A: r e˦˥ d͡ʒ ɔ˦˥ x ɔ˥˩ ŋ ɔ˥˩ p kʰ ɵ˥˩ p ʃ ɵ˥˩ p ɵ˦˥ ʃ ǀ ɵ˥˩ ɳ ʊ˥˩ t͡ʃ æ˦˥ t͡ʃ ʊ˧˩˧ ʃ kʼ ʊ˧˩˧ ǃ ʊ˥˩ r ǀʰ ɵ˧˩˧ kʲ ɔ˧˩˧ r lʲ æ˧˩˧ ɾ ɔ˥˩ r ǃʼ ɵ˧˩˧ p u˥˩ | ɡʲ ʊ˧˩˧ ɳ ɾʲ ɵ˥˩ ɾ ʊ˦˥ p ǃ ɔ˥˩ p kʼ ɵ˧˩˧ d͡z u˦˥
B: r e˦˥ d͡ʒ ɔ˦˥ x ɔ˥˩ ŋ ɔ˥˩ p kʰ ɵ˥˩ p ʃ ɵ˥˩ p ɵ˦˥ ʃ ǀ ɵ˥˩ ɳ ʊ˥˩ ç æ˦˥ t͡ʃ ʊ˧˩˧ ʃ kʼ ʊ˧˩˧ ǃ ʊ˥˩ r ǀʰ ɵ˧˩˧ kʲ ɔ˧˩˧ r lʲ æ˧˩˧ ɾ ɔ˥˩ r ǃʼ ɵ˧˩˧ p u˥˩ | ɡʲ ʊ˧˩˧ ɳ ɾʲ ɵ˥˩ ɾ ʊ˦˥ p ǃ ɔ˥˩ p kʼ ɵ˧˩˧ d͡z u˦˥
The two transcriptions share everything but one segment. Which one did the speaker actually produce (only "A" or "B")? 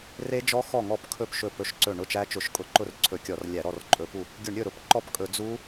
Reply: A